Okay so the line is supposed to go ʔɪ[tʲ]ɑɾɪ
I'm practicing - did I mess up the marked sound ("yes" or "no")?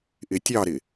no